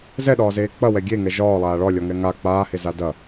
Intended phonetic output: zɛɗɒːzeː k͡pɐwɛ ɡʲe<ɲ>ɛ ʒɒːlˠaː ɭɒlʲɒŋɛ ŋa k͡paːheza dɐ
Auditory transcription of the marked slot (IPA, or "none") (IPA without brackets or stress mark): ŋ